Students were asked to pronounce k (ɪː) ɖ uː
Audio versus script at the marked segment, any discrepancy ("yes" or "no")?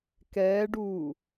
yes